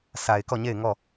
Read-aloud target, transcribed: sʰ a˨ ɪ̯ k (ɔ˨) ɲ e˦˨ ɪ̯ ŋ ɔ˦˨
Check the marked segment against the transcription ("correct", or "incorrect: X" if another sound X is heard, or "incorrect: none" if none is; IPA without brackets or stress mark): incorrect: ɔ˦˨